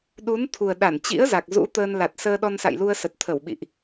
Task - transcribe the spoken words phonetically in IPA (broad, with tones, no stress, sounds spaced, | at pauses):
ɗ u˨˦ n t̪ʰ u˨˩ ə̯ ɗ a˧˩ n t͡ɕ ḭ˧˥ ə̯ z a˨˩ k̚ z ṵ˧˥ t̪ əː˧ n l a˨˩ t̚ s əː˧ ɗ ɔ˧ n s a̰˧˨ j l u˧ ə̯ s ə˨˩ t̚ t̪ʰ ə˧˩ w ɓ ḭ˧˨ ʔ